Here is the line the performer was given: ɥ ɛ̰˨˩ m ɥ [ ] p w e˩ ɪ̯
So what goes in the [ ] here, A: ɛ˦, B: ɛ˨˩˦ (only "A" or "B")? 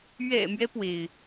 A